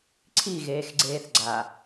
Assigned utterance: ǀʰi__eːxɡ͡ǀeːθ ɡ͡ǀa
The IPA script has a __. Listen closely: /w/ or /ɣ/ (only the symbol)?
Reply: ɣ